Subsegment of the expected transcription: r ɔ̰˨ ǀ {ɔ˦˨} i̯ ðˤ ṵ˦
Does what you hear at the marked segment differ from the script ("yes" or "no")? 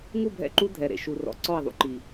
no